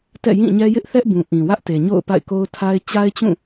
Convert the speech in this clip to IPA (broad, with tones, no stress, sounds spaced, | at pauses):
t ɛ̰˦˨ j ĩ˦˨ ɲ ɛ˦ j ɪ˦ ʔ θ ɛ˦ ʔ b ũ˨ ʔ ĩ˨ w ä˦ ʔ t e˨ ɲ o̰˦˨ ʊ̯ p a̰˦˨ ɪ̯ k o˦ ʊ̯ tʰ a˦ ɪ̯ t͡ɕ a˦ ɪ̯ t͡ɕ ũ˦˨